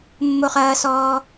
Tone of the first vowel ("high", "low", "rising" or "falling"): high